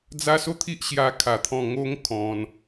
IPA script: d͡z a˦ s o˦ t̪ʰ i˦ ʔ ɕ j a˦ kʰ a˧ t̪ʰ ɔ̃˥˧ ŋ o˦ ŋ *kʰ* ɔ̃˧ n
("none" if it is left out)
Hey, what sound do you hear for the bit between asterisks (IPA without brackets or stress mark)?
kʰ